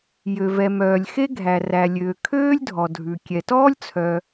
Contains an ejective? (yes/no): no